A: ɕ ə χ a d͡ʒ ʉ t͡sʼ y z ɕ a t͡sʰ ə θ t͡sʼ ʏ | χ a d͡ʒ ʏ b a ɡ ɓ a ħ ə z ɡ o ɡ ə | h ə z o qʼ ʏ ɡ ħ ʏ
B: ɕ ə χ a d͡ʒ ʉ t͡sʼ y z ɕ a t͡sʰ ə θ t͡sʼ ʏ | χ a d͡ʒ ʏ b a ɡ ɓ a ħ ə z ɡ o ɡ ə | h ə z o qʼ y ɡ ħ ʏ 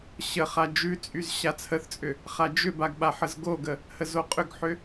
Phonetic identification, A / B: A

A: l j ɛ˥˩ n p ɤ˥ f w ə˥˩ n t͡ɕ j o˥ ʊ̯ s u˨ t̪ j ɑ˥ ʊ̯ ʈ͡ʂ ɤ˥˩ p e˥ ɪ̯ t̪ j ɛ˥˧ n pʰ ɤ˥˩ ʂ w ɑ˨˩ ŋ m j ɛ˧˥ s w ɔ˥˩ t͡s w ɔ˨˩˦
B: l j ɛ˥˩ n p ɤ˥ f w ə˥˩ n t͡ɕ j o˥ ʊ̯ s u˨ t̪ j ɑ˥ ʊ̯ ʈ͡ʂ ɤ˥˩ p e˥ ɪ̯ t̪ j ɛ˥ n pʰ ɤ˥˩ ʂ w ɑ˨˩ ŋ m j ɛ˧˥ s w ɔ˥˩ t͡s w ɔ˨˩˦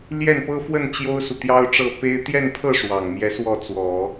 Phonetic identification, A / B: A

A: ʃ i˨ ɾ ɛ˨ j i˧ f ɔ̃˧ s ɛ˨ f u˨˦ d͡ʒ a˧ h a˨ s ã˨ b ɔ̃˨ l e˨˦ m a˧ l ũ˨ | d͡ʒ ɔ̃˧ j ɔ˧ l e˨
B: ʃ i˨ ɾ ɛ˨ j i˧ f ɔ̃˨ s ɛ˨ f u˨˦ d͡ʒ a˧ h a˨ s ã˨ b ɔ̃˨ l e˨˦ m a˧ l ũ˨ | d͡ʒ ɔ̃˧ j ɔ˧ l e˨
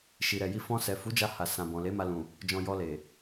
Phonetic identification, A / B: A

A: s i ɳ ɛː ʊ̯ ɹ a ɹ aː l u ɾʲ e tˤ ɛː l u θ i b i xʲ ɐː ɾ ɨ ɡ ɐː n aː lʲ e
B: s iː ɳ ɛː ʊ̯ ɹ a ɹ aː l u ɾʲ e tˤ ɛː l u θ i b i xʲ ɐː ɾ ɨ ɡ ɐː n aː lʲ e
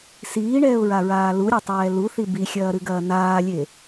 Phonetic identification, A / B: B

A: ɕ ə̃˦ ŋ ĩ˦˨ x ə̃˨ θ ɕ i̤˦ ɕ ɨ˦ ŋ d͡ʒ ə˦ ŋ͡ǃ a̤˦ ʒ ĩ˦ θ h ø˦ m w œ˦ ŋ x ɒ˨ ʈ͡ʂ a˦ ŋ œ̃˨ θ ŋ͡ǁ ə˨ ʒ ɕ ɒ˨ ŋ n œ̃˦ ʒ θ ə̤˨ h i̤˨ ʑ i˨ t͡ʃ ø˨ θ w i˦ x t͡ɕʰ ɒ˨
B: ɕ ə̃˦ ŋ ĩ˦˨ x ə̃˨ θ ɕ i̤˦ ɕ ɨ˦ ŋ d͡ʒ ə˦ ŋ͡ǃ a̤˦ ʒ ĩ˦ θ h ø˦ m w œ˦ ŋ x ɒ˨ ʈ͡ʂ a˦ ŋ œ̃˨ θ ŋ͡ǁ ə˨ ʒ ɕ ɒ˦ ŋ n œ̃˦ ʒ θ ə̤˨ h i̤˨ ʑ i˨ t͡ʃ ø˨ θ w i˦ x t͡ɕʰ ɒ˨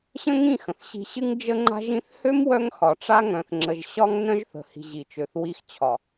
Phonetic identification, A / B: B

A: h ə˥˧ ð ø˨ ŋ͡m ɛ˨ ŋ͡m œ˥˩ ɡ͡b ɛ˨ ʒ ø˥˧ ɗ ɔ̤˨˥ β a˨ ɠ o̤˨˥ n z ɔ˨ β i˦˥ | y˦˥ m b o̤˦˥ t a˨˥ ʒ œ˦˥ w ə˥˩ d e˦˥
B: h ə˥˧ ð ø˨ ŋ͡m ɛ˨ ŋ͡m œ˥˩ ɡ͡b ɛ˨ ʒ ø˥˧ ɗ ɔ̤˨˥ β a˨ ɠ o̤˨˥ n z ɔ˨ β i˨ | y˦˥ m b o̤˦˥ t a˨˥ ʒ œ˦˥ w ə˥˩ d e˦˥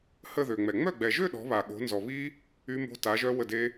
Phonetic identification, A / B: A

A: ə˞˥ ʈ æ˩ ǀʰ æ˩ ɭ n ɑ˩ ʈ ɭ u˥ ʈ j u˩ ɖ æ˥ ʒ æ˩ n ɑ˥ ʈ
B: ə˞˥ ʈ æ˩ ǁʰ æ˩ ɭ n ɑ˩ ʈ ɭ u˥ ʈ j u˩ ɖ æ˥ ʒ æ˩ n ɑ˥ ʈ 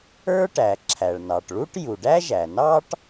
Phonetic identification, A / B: B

